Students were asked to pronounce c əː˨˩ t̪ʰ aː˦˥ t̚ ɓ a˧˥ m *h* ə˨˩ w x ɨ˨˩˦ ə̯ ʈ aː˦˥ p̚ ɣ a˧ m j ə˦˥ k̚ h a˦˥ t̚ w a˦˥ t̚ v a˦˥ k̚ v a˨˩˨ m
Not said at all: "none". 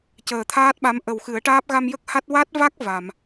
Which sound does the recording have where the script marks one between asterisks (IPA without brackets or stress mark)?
ʔ